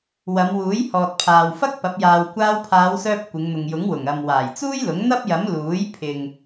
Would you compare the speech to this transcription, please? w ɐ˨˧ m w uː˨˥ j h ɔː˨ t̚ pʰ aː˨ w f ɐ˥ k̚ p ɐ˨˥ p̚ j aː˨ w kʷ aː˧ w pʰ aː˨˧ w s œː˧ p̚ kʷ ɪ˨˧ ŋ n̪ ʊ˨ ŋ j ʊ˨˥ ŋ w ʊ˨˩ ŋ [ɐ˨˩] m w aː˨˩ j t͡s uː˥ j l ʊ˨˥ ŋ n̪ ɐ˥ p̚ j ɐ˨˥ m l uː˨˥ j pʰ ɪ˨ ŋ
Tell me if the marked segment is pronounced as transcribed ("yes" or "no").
no